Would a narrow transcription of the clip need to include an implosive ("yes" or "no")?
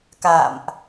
no